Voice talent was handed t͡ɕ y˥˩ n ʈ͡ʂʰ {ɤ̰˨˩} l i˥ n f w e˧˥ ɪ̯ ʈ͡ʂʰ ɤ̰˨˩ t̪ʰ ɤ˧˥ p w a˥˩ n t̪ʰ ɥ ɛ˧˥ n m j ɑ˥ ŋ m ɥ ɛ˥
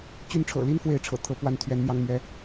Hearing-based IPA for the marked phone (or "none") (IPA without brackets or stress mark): ɤ̰˨˩